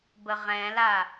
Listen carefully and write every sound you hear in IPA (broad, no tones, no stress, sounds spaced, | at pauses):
b ə ʁ ɛ̃ l a